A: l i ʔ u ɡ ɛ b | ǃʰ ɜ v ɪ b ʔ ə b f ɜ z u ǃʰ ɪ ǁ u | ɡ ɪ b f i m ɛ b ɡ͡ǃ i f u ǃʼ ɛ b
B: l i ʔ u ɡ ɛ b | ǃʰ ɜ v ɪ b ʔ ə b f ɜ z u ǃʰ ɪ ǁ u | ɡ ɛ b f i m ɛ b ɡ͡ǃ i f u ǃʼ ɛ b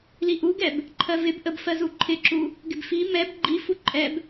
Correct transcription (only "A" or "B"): A